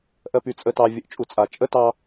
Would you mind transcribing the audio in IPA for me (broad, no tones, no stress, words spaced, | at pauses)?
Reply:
ʔɜpyt͡sʼətɑ vʲəʔt͡ʃʼut͡sʼat͡ʃʼə tɑ